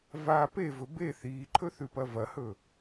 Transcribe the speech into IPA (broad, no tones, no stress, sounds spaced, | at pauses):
v a p e v ɵ b e θ iː ǃʰ ɵ θ ʉ p ɐ v ɐ h ɵ